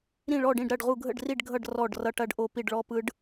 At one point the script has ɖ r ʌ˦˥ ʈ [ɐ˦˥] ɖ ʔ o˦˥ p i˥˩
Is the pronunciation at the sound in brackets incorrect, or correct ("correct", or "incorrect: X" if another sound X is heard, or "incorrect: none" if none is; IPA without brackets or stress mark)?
correct